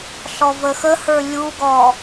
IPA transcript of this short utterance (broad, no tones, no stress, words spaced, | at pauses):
ɬɔvəxəhə˞ lʲuɡɔ